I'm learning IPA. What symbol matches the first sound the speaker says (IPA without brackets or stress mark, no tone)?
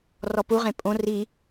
r